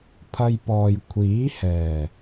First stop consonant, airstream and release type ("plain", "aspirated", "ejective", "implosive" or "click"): aspirated